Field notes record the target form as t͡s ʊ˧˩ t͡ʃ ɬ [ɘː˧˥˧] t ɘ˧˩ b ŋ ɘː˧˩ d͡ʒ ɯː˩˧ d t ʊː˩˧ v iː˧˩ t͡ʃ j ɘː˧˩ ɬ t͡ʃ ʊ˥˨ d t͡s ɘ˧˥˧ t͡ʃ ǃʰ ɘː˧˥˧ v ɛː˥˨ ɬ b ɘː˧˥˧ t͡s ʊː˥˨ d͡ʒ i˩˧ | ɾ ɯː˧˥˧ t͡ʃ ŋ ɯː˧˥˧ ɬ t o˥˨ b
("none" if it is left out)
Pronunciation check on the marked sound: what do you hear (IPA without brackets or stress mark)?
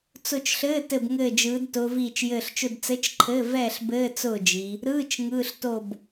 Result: ɘː˧˥˧